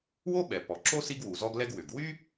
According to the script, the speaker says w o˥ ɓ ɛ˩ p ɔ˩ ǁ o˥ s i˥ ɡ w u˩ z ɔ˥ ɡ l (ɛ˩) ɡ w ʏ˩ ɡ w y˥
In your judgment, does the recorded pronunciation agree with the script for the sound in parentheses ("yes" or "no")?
no